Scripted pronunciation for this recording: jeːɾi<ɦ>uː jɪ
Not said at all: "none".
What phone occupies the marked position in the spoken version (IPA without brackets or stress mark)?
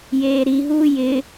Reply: ɦ